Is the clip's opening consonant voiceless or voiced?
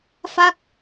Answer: voiceless